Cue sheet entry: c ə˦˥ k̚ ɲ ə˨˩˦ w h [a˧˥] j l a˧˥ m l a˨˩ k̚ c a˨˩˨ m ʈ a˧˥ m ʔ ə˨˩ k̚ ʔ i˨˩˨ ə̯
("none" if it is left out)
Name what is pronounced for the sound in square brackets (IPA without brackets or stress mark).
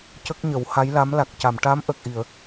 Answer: a˧˥